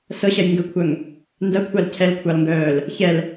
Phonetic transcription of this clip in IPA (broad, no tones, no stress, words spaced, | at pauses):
sɤɕɐj ŋɡəkʷʰœŋ | ndɐkʷʰal cʰɛlkʷʰɑlŋɡœːl | çɛl